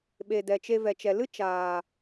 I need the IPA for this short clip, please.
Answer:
ɓ e˨ d ɛ˨ t͡ʃ e˧ v ɛ˨ t͡ʃ ɛ˨ l ɨ˦ t͡ʃ aː˨

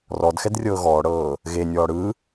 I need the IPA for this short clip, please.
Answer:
r ɔ d x ɛ d rʲ ɤː ɣ ɔː ɽ ɤː | ɣ e nʲ ɔː ɽ ɯ

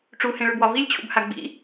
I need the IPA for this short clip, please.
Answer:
ʈ͡ʂ u h ẽ ɭ ʉ b w ɒ v i lʲ t͡ɕʰ ṵ b h a ɡ͡b ḭ

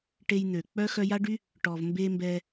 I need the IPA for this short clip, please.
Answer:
ʈ e˦ j n̪ ø˩ k͡p œ˦ x œ˦ j a˥ ɖ y˥ | ʈ ɔ˩ v m b e˥ m b ɛ˦

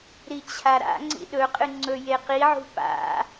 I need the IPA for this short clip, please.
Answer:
ɾ i t͡ɕʰ a ɾ a̰ ŋ͡ǀ ḭ ɗ ɵ qʼ ɨ ŋ͡ǀ ɵ j e q i ʕ ṳ p a̰

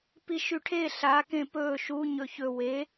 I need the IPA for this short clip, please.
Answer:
p i ʃ y ʈʰ e ɬ a k ẽ p ɵː ʃ u ɲ ɵ ç ɵ w e

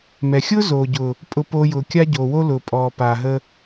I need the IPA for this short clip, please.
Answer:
m ɛ˨ xʲ ʊː˦ z oː˨ ɟ ʊ˨ | pʼ ʊ˦ p oː˦ j ʊː˧ kʲ a˦ ɟ oː˨ w o˦ l ʊː˨ pʼ ɔː˨ p aː˨ ɦ ə˧

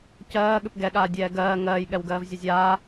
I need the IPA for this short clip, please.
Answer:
c ɜː ɠ ʏ p ɡ ɛ ɠ aː dʲ ɛː ɡ ɜː ŋ ɜː j ɠ ɛ w ɡ ɜː v zʲ ə zʲ aː

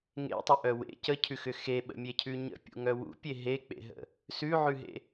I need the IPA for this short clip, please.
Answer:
ŋ ḛ tˤ ʏ ʔ œ w ḛ c ə cʰ ʉ x ʏ x e ɓ ə̰ mʲ e cʰ ʉ ɲ ə̰ pʲ ṵ ŋ œ w ṵ pʲ e ɦ e k͡p ḛ ɦ ə̰ | s ʉ ʕ ʉ ɦ ḛ

